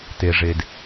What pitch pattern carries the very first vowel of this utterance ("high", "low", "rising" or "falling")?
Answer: low